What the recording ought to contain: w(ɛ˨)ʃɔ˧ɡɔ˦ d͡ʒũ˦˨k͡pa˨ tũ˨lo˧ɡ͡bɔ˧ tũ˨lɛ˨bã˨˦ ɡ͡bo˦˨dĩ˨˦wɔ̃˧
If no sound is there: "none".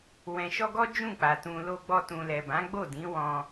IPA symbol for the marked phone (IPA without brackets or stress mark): ɛ̃˨